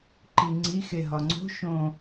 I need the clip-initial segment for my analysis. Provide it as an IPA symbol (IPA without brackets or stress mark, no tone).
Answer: ǃ